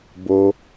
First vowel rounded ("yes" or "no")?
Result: yes